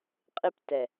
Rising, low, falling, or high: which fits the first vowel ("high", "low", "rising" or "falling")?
high